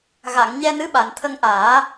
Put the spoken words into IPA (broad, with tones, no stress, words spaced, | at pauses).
ɣa˨˩˨ŋ ɲɛ˧nɨ˧˥ɓa˨˩˨n t̪ʰə˧ŋʔaː˨˩˦